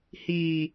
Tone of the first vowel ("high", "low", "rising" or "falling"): low